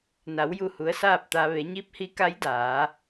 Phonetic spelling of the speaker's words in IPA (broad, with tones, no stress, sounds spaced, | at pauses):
n a˩˧ w j u˧˩ h u˩˧ ə̯ s aː˥˨ p̚ t̪ a˧ ʋ e˩˧ ɲ i˧˥ p̚ h i˧˥ k a˧˥ j d aː˩˧